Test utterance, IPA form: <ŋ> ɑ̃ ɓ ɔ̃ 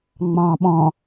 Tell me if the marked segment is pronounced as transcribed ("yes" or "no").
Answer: no